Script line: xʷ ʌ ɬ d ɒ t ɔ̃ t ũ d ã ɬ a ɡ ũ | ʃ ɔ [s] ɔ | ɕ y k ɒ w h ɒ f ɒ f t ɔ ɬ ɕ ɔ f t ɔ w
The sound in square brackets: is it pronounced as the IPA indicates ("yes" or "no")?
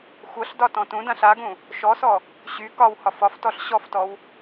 yes